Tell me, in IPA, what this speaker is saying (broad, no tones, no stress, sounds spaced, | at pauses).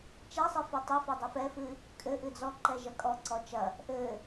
t͡ʃ ɛ sˤ ɨ f i tˤ i f ɘ dˤ ɨ f ɛ f ɨ | kʼ ɘ ʔ ɨ d͡z ɔ ǃ ɛ ʒ ɐ kʼ ɔ ǀ ɔ t͡ʃ ɐ | ʔ ɘ